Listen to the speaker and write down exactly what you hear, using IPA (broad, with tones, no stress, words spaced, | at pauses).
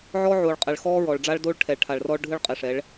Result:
ʕɔ˦ʕoː˨ɭ qʼɛ˨ɭxɔː˦ɹɔ˨ɭɖ͡ʐa˦ɭ do˦ɭ ʈʰɛ˨ɭʈʰa˨ɭrɔ˦ɭ ɖʱɯ˦ɭ qʼe˨ʂɛ˨˦ɭ